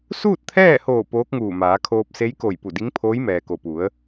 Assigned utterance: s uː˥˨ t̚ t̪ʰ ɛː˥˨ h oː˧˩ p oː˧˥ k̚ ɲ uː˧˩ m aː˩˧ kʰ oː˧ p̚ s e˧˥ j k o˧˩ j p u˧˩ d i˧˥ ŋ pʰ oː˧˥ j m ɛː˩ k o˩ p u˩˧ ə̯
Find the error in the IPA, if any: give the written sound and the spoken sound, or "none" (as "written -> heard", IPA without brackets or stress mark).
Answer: ɲ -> ŋ